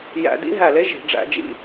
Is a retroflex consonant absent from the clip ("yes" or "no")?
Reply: no